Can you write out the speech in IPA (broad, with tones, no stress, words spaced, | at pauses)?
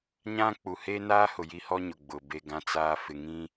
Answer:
ɲã˦ k͡pu˨heː˦naː˦hʊ˨ ji˦hɔ˦ɲʊ˨ ɡ͡bʊ˨ be˨ ɡã˨t͡saː˨fɪ˨ŋĩ˦